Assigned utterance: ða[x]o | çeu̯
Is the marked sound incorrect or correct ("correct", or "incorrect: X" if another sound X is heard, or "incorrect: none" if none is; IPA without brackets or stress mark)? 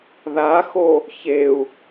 correct